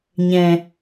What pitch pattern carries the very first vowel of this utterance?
low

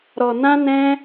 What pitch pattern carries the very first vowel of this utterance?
low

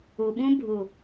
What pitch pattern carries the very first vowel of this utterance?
low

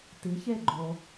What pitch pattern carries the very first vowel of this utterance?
rising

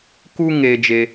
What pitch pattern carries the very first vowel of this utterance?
high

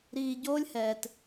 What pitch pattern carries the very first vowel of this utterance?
low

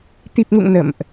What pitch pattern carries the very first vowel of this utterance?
low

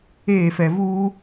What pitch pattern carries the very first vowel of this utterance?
falling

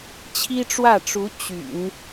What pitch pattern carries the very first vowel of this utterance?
high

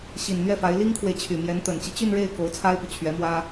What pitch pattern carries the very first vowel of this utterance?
low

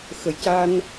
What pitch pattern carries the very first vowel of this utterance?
low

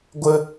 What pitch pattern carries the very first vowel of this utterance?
high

